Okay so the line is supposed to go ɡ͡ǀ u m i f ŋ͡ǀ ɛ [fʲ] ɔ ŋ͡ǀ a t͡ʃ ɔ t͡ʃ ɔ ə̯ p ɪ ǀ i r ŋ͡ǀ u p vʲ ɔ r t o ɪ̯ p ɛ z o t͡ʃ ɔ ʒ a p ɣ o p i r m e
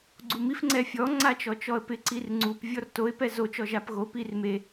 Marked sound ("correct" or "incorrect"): correct